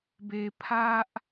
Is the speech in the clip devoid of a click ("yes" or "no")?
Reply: yes